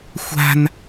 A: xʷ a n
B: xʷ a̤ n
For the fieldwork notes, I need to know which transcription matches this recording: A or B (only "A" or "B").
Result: B